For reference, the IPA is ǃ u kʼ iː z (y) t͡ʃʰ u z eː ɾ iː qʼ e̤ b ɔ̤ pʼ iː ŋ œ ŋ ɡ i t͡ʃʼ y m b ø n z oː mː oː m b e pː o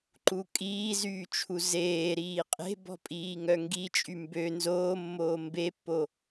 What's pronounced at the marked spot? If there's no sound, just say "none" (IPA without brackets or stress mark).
yː